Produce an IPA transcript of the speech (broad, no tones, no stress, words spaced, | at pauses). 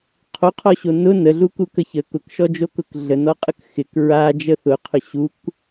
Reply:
qʰoqʰɔɕo nʊ nəɮuku kəçə kʊkʃɔd͡ʒokʊk ɮənɔqʼək xɪk ɹa d͡ʒəθʊqʰʊ ɕuk